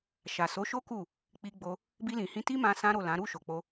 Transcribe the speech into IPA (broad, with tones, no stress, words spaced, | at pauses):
ʃa˨so˨˦ʃo˦ ku˦˨ | k͡pi˧ɡ͡bo˧ | bi˧lĩ˨hĩ˧ ti˦mã˧ sã˦ɾo˦˨lã˨˦ ɾu˦˨ʃo˨k͡po˧